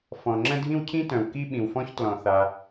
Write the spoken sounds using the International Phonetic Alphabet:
f ɔ̃˩ ŋ͡ǁ ə̃˥ dʱ ĩ˥ w cʰ ĩ˥ t œ̃˩ w k i˥ ɓ ĩ˩ w f ɔ̃˥ ç t l ɔ̃˩ θ a˩

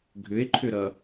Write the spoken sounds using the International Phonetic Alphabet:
ɡʱ ʏ e̯ ǃʰ ʏ ɾ ʌ

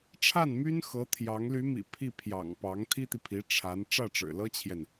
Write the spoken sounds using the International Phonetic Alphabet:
ʈ͡ʂʰ a˥˩ n m y˥ n x ɤ˧˥ t̪ʰ j ɑ˧˥ ŋ l y˧˥ m ḭ˨˩ pʰ i˥˩ pʰ j ɑ̰˨˩ ŋ p ɑ˧˥ ŋ t̪ʰ i˥ t̪ i˨ pʰ i˧˥ ʈ͡ʂʰ a˧˥ n ʈ͡ʂ ä˥˩ ʈ͡ʂ ɻ̩˨˩ l ɤ˥ t͡ɕʰ j ɛ˨ n

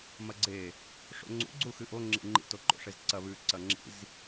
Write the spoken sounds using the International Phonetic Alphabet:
m ɐ ɡ͡ǀ e | ʂ o̰ ŋ͡ǀ ṵ ɡ͡ǀ u x ɨ ʔ o ŋ͡ǁ ḭ ŋ͡ǃ ḭ t o ǃ o̰ ʂ e z ǀ ɐ β ʉ ǀ ɐ ŋ͡ǁ ḭ z

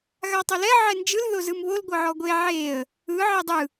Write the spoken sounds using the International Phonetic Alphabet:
ɣ a tˤ o l ɛ ʕ ɛ n d͡ʒ ɯ l ð o z ɯ m β o l ɡʷ ɤ ʕ ɔ ɡʷ e ʕ e ə̯ | ɯ ʕ e dˤ ɯ

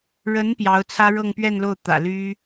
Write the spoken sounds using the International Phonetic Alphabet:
ɻ ə˧˥ n p j ɑ˧˥ ʊ̯ t͡sʰ ä˥ ɻ ɤ˥˧ ŋ p ɥ ɛ˥˧ n l o˥˩ ʊ̯ t̪ ä̰˨˩ l y˥

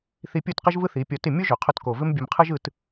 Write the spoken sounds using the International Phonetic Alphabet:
θ i˧ pʲ o˦˨ t q ɪ˦ ʒ v ɯ˦ θ i˨˦ pʲ ɔ˧ t ɪ˦˨ mʲ o˦ ʒ ø˨ qʰ ʊ˧ t k o˨ v ɪ˦ m bʲ ə˧ m qʰ ɯ˦ ʒ ɯ˦ t

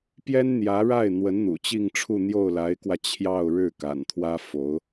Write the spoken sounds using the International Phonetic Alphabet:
p j ɛ˥ n n̪ j ä˧˥ ɻ a˥˩ ɪ̯ n̪ w ə˧˥ n n̪ ṵ˨˩ t͡ɕ i˥˧ ŋ ʈ͡ʂʰ u˥˧ n̪ j o˥˩ ʊ̯ l a˧˥ ɪ̯ k w ä˧ t͡ɕʰ j ɑ˥˧ ʊ̯ ɻ ɻ̩˥˩ k a̰˨˩ n t̪ʰ w ä˥ f o˧˥ ʊ̯

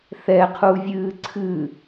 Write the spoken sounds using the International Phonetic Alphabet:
θ ɛ qʰ u vʲ ɨː ǀʰ ɨ

